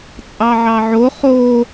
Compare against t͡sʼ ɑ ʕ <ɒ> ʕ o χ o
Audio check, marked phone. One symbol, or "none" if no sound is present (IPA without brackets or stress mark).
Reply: ɑ